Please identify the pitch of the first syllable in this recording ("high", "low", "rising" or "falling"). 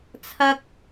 high